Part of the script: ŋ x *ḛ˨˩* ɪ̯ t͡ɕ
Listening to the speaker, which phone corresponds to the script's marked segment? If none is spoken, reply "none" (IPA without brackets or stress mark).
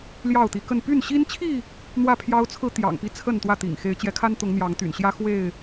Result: e˨˦